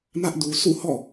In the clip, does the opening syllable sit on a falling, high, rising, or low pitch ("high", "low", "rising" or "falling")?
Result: high